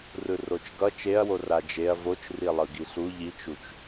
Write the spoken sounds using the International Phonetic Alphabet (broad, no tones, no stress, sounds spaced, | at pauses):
r ɯ r o t͡ʃ ɡ ʌ t͡ʃ e ɐ̯ w o r a d͡ʒ e ɐ̯ v o t͡ʃ r i lˠ ɯ ɡ i ɬ u ʎ i t͡ʃ u t͡ʃ